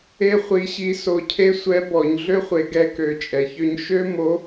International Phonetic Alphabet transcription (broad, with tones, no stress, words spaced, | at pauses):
e˥ χʷi˧˥ɕi˧˥ so˧cʰe˥ sʷɛ˧˥bɔ˩˧ɲ ɮø˥χʷe˩˧ ɡɛ˧ kø˩˧t͡ʃʼɛ˩çø˧ɲ ʃø˥mo˧˥